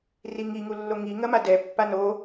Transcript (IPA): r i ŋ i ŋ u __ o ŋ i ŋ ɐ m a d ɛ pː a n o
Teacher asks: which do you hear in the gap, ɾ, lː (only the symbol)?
lː